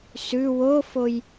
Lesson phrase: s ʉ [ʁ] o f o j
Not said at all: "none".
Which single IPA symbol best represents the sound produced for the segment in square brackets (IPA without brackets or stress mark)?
w